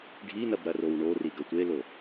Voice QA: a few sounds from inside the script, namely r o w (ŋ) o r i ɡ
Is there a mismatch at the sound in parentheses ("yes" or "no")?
yes